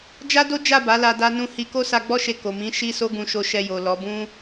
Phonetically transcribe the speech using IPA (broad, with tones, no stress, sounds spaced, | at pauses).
d͡ʒ a˦ d o˦ d͡ʒ a˦˨ b a˨˦ l a˧ d a˧ n ũ˧ h i˧ k o˦ s a˧ ɡ͡b ɔ˦ ʃ e˧ k o˨ m ĩ˨˦ ʃ i˦ s o˦ ɡ ũ˧ ʃ o˧ ʃ ɛ˧ j o˨ l ɔ˨˦ b ũ˦